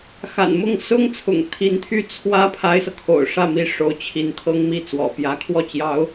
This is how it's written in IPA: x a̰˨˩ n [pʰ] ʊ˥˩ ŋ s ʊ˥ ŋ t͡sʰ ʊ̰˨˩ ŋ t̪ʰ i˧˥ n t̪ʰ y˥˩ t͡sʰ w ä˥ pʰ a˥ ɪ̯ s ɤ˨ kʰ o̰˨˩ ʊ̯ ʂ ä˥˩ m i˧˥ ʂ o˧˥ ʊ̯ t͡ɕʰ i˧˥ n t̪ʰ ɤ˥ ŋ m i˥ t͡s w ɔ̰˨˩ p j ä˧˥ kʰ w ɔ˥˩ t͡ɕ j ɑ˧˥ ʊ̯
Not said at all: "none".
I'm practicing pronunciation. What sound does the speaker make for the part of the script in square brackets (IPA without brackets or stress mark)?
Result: m